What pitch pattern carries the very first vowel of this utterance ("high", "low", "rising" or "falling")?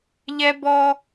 high